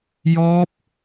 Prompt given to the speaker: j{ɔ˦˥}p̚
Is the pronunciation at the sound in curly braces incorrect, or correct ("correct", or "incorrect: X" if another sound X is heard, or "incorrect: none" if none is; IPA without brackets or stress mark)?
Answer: correct